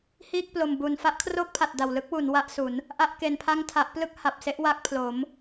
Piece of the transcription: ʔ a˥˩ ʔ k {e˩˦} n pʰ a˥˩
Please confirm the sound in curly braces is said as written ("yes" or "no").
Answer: no